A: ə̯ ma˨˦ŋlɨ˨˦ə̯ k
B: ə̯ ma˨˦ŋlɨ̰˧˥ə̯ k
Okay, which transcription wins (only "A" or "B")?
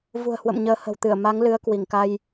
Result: A